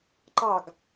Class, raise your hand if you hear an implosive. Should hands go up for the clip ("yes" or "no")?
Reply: no